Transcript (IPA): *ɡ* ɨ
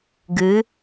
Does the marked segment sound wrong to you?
no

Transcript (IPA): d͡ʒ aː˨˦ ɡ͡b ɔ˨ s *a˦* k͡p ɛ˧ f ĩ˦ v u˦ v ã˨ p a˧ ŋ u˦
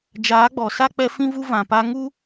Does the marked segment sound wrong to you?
no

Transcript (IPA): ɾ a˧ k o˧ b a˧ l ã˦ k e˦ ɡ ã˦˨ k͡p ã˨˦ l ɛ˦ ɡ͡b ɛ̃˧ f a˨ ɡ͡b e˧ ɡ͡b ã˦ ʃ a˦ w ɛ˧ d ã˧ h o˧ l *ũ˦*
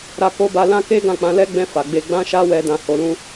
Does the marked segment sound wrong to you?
no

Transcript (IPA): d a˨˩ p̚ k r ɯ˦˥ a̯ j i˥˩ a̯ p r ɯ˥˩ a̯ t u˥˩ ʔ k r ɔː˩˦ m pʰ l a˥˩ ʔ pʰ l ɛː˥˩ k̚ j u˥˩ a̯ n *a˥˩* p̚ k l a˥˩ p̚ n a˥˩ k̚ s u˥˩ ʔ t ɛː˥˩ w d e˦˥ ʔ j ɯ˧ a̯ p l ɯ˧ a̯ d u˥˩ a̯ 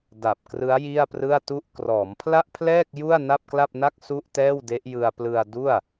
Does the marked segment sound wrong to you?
no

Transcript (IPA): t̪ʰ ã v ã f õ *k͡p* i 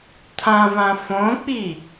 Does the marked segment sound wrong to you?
no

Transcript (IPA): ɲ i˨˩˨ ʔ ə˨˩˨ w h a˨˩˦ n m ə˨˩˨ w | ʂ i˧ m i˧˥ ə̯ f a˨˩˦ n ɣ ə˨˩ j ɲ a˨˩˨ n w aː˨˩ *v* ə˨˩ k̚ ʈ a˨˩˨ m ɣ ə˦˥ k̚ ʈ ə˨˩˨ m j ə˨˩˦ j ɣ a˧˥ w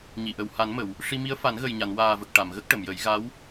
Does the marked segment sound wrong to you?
no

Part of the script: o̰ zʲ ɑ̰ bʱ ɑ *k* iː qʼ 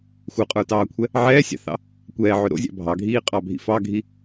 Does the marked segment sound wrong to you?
yes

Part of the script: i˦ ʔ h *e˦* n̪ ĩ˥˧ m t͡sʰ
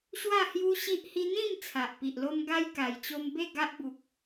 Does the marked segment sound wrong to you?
yes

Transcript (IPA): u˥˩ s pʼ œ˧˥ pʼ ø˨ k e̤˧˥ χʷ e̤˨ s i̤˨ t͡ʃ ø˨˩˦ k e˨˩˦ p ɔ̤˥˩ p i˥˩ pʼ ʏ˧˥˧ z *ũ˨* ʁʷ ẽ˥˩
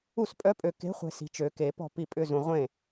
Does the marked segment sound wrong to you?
no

